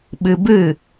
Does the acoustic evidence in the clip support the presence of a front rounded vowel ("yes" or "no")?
no